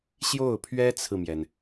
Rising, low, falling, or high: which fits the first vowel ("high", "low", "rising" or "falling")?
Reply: falling